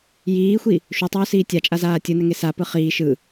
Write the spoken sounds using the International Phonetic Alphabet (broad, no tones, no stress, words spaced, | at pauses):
jiːxʷi | ʃutˤuːsiː tʲat͡ʃʼazaː tʲɯnɛŋe sapɯ χiː ʃɯ